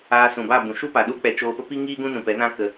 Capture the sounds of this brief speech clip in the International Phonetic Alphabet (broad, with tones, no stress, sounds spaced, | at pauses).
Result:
aː˧ s ũ˨ b a˦˨ b ũ˨ ʃ u˦ p a˨ ɗ u˦ k͡p ɛ˧ t͡ʃ oː˧ p ə˦ p i˦ ŋ iː˦ ɡ ũ˦ n ũ˨ p ɛ˨˦ n ã˦ k ə˧